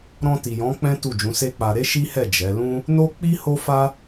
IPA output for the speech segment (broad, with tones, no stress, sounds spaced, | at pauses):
ɾ ɔ̃˧ t i˨ j ɔ̃˨˦ k͡p ɛ̃˦ t u˦˨ d͡ʒ ũ˨˦ s e˦ k͡p a˧ ɾ e˦ ʃ i˦ h ɛ˦˨ d͡ʒ ɛ˨˦ l ũ˦ | n o˦ k͡p i˦ h o˦ f a˦